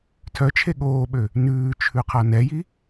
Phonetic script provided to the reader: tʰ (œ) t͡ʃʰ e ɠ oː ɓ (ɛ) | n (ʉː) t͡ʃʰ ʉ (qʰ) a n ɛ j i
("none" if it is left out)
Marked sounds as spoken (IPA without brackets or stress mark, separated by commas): œ, ø, ʉː, qʰ